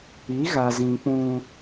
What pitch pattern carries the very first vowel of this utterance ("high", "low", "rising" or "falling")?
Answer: rising